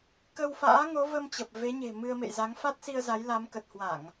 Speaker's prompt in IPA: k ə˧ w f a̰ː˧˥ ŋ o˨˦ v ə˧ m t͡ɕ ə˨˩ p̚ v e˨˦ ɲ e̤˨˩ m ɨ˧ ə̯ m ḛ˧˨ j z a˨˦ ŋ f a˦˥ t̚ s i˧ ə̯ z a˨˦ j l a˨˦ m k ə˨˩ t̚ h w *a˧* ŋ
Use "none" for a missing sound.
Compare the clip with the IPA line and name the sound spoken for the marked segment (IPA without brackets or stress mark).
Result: a˧˩˨